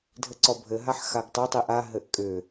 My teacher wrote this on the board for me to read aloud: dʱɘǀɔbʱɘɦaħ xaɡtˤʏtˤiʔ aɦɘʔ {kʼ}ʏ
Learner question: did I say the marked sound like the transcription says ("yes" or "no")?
yes